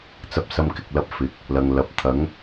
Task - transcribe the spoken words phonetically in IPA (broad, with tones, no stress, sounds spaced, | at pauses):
t͡s ɐ˧ p̚ s ɐ˧ m k ɪ˨ k̚ l ɐ˧ p̚ f ɪ˨ k̚ | l ɐ˨ ŋ l ɐ˨˥ p̚ t̪ʰ ɐ˨˥ ŋ